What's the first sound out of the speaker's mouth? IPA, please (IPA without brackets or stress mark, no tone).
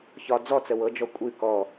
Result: ç